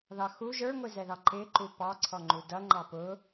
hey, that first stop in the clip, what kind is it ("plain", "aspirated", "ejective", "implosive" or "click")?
click